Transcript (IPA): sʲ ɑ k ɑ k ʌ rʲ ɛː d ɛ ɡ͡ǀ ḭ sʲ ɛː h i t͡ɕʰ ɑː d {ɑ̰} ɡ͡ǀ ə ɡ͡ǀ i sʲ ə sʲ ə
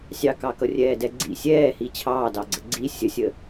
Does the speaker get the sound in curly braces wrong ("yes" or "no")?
yes